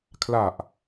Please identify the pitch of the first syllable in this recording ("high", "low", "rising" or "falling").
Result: low